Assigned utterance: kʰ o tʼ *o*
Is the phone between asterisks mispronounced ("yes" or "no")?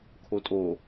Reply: no